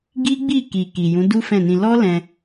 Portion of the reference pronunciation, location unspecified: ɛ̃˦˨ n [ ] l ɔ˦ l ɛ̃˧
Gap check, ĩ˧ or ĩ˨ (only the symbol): ĩ˧